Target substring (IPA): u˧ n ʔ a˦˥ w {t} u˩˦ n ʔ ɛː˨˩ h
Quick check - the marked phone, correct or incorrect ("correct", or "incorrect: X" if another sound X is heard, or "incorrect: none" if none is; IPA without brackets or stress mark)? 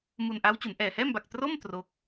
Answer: incorrect: t͡ɕ